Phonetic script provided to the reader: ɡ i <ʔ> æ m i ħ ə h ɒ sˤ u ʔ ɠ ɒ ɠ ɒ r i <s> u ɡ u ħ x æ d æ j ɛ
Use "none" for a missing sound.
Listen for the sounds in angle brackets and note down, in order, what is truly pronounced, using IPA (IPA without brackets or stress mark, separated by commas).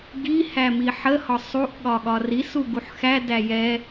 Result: h, s